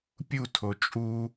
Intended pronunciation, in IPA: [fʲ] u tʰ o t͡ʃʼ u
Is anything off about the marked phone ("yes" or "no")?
yes